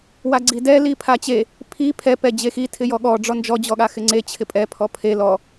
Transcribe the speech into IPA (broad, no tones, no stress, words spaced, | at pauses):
waɡ͡ǀidɛ lipʰat͡ɕe | pʰi pʰɛ pɛd͡ʑexi tʰɪjɔɠɔ ɖ͡ʐɔnd͡ʒɔ d͡ʑɔɠaxɪŋ͡ǀe t͡ɕʰɪpʼɛ pʰɔpʰe lɔ